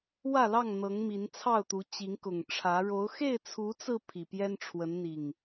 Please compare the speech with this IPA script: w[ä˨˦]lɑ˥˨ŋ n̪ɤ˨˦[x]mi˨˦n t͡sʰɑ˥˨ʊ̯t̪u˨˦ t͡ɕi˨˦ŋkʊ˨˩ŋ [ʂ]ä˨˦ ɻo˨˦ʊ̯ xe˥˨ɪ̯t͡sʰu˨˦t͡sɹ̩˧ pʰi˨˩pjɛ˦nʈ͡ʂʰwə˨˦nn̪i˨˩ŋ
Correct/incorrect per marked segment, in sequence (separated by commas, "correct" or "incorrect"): incorrect, incorrect, incorrect